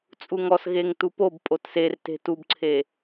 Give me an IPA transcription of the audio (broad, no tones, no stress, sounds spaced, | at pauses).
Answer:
t͡sʼ u ŋ ɔ s ɣ e ŋ t u p o b pʼ o t s e r t e̤ t u b ǀʰ e